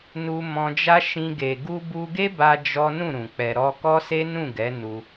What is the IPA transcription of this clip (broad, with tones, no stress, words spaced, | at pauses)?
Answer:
nu˧ mɔ̃˧d͡ʒa˦ ʃĩ˧ɡe˨ ɡu˧bu˧ɡe˦ba˧ d͡ʒɔ˦ nũ˦˨ɾũ˨ k͡pɛ˧ɾɔ˦ kɔ˦se˦nũ˦˨ɡɛ˨˦ nu˧